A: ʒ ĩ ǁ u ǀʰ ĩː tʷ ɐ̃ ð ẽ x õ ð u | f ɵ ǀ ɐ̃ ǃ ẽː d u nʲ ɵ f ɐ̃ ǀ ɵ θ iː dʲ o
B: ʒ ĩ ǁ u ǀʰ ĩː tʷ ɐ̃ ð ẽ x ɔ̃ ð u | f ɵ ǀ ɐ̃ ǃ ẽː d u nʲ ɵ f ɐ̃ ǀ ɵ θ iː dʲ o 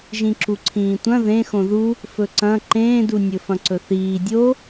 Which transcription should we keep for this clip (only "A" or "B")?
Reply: A